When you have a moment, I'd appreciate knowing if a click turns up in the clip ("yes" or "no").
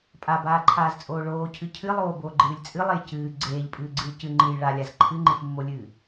yes